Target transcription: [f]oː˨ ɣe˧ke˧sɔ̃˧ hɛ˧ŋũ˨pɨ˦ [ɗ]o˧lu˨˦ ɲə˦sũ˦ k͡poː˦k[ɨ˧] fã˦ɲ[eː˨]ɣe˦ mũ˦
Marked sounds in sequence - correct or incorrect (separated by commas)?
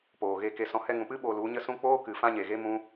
incorrect, incorrect, incorrect, incorrect